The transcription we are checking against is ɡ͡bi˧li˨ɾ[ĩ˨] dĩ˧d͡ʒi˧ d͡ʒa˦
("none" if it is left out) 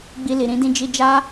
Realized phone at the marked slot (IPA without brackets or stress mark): ĩ˨˦